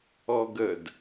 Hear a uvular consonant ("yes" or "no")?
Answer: no